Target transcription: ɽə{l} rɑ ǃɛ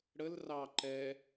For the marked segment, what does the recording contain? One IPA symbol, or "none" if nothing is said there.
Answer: l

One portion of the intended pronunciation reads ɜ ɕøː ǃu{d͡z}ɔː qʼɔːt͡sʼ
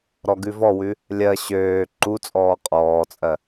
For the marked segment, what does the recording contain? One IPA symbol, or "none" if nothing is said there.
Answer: t͡sʼ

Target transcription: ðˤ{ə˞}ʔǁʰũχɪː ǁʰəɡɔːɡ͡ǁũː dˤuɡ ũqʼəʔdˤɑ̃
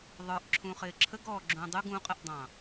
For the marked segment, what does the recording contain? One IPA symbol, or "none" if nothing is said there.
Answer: ə˞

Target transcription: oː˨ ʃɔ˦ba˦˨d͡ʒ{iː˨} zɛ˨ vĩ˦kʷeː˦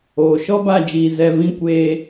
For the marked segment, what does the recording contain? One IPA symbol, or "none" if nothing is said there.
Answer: iː˨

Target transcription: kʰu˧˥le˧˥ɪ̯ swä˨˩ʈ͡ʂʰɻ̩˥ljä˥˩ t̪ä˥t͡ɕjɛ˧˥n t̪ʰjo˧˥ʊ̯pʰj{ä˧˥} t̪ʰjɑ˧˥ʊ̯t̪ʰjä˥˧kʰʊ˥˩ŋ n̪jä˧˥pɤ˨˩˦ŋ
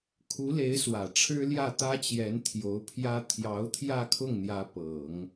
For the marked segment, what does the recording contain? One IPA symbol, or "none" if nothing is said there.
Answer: ä˥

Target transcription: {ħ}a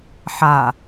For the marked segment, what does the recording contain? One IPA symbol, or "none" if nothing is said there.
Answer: ħ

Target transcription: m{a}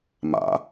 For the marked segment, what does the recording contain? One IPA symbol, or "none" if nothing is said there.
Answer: a̰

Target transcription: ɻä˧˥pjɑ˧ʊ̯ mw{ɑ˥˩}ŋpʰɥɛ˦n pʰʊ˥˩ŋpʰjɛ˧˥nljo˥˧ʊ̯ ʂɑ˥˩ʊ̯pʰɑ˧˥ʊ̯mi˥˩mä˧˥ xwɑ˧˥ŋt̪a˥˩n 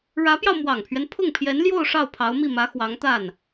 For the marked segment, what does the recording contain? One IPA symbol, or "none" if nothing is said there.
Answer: ɑ˨˩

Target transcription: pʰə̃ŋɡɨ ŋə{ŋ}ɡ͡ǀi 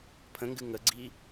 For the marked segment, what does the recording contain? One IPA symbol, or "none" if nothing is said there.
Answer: none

